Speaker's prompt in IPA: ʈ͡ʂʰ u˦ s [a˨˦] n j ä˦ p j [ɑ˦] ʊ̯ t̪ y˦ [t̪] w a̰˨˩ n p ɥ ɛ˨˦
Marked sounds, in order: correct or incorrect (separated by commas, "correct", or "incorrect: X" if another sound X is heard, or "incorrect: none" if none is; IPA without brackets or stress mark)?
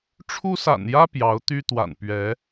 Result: incorrect: a̰˨˩, incorrect: ɑ˨˦, correct